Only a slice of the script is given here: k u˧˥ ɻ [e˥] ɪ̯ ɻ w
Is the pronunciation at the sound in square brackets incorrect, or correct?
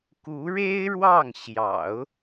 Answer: correct